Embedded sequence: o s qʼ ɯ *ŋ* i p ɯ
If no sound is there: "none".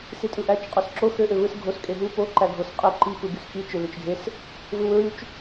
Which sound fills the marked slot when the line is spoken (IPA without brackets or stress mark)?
ǃ